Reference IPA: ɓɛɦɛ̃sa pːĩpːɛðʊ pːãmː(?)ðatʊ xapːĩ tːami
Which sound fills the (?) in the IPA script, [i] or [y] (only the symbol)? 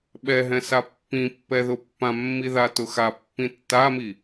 i